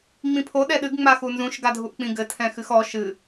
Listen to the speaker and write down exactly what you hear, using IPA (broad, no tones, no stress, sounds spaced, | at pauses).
ŋ͡m ĩ pʰ o ɗ ɛ ɗ ɨ ɡ ŋ͡m a x u n z ũ ʃ ɡ a dʱ u ʔ k͡p ĩ ɡ ɘ tʰ ɛ̃ x ɨ x ɔ ʃ ɨ